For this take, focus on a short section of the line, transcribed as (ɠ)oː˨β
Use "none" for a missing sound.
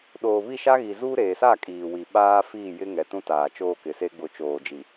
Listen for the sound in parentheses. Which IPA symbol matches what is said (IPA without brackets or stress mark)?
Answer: ɗ